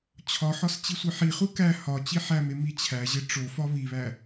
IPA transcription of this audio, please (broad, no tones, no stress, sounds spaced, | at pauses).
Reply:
t͡ɕʰ ɒ ħ ɒ s t͡ɕ i sʷ i ħ i χ u k æ h ɒ t͡ɕ i ħ æ m e m i t͡ɕʰ æ ʑ e ʈ͡ʂ o f ɒ β i β æ